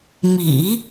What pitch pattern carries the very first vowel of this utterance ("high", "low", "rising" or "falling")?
low